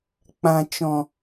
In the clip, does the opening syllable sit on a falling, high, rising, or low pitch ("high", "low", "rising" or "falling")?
low